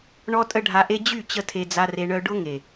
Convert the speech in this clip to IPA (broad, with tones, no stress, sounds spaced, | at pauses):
ɳ ɔ˦ tʼ ə˦ ɖʱ a˧ ʔ e˦ d͡ʑ y˦˨ t͡ɕ ə˦ tʰ e˧ d͡z a˧ r e˧ ɳ œ˧ ɖ ʊ˦ ŋ e˨